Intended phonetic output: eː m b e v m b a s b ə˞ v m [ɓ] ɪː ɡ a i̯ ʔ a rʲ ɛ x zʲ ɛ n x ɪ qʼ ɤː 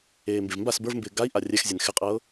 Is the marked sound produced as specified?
no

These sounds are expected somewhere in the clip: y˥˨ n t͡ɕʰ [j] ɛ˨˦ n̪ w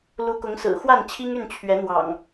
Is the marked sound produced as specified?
no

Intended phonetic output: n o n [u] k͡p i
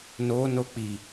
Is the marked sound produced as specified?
no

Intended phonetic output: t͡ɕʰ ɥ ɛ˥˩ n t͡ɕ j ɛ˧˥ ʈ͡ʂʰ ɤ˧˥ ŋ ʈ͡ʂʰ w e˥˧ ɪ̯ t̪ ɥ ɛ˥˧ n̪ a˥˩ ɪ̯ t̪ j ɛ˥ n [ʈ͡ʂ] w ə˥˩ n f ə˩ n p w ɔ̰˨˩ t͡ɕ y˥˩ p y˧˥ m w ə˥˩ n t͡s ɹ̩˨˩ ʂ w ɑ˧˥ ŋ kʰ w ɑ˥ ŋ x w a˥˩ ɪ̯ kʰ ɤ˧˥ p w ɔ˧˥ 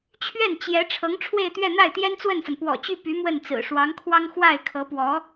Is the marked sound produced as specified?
no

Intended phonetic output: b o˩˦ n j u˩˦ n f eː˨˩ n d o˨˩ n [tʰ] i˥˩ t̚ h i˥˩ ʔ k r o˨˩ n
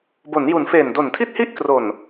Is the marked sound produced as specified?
yes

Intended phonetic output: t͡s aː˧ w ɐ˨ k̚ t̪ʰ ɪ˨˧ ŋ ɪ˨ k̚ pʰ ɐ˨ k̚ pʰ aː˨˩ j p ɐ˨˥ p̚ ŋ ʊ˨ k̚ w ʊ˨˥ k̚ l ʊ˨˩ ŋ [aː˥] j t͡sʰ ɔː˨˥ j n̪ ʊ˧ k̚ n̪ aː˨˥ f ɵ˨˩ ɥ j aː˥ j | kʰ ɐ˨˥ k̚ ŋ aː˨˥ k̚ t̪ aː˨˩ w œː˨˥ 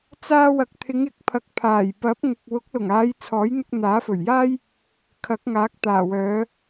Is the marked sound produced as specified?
no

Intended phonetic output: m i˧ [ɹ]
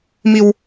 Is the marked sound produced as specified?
no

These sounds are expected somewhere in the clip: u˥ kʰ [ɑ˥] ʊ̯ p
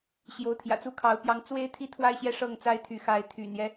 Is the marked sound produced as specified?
no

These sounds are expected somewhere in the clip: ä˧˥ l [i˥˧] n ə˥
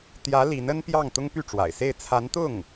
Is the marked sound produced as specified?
no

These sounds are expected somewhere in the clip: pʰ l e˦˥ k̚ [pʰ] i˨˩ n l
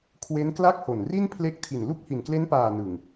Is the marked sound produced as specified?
no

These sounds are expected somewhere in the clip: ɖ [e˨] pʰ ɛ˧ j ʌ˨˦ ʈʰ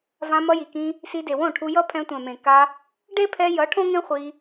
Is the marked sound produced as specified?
no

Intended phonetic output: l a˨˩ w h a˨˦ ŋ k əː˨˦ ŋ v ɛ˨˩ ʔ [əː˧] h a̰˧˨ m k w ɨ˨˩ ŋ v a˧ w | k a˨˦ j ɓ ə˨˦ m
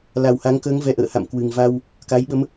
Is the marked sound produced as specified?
no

